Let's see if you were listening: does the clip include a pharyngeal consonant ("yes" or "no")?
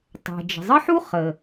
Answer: yes